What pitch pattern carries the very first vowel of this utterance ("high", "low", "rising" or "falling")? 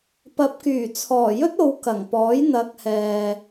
rising